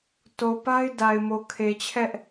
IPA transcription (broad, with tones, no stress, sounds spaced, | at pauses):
t o˨ p a˦ ɪ̯ d a˨ ɪ̯ m o˨ kʰ e˨ t͡ɕʰ ɛ˦ ʔ